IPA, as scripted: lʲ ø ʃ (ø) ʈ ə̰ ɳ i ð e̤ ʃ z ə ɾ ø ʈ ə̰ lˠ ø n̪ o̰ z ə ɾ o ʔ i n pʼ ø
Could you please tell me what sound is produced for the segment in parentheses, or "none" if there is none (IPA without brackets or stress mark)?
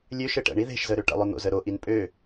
ɘ